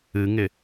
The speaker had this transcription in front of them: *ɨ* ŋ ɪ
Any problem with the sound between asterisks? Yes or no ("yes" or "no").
no